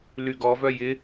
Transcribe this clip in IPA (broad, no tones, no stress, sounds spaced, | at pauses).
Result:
l y ɡ ɔ v œ j ɪ